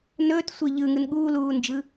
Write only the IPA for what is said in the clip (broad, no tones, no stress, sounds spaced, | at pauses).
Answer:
n ɵː t sʷ e ʎ ɯ ŋ ɯ n ɠ uː l uː n d͡ʒ ɯ